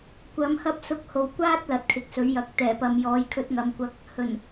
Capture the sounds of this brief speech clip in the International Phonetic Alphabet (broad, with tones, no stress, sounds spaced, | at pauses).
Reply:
kʷ ɐ˨˥ m h ɐ˥ p̚ s ʊ˧ k̚ h o˨ w kʷ aː˥ t̚ l ɐ˨ t̚ kʰ ɪ˨ k̚ s ɵ˨˥ ɥ j ɐ˨˥ k̚ t̪ ɛː˨˩ p ɐ˨ m j ɔː˧ j kʰ ɵ˧ t̚ ŋ ɐ˨˧ m kʷ ɐ˧ k̚ | h ɵ˨˩ n